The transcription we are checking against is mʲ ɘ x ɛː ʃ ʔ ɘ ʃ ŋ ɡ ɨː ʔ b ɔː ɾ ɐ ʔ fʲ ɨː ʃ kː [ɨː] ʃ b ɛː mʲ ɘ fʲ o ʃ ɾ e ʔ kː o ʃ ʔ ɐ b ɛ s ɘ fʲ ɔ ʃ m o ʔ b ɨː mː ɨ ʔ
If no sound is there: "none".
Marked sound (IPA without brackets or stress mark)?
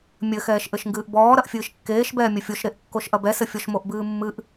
eː